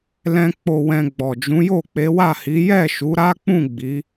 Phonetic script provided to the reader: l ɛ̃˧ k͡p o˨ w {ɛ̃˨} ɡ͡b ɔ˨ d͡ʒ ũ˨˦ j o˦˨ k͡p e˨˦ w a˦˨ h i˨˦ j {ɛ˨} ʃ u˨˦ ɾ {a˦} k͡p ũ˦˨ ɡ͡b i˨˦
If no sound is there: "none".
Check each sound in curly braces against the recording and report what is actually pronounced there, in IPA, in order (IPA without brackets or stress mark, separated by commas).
ɛ̃˨, ɛ˦˨, a˦